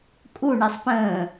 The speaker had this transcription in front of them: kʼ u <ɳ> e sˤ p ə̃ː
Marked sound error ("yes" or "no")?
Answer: no